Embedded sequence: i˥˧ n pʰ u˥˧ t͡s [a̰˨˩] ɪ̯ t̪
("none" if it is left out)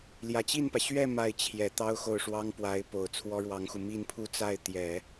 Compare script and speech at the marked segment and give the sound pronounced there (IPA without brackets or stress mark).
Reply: a˥˩